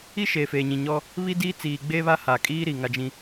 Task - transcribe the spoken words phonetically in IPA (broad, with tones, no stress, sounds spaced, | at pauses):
i˦ ʃ eː˨ f eː˨ ɲ ĩ˨ ɲ ɔ˦ | β i˦ d iː˦ t͡s iː˨ ɡ͡b eː˦ β a˦ h aː˨ kʼ iː˦ ɾ i˨ ŋ a˦ d͡ʒ ĩ˦